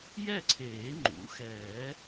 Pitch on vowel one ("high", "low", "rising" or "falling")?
falling